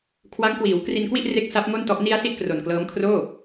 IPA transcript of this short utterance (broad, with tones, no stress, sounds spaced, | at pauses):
kʰ w a˦˥ ŋ k w iː˩˦ w k r i˧ n k w i˥˩ ʔ r e˦˥ k̚ s a˦˥ p̚ ŋ o˥˩ n t ɔ˦˥ ʔ n i˧ a̯ s i˥˩ ʔ k r o˨˩ n k l ɤː˦˥ m kʰ r oː˥˩